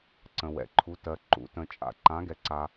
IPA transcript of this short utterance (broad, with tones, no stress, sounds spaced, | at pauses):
ǀ ə̃˩ w ɛ̰˩ ǃʰ u˩˧ t ɜ˩ ǃ ṵ˩˧ t ə̃˩ t͡ʃʼ a̰˩ ǃ ã˩˧ ɡ ɛ˩ ǀ a˩